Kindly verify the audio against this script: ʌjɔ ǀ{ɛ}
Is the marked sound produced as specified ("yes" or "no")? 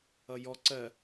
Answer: no